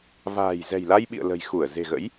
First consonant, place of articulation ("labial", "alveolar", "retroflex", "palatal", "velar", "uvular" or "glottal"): labial